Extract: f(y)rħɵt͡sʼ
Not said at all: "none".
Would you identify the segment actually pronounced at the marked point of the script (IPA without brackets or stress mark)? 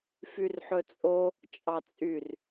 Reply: y